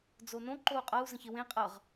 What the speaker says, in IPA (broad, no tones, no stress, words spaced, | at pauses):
d͡zonõ ǃou̯qʼɤu̯ zə̃çewẽ qʼɤʁ